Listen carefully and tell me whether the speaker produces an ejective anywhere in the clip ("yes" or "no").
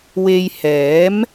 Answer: no